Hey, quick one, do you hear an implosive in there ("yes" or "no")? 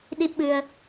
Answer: yes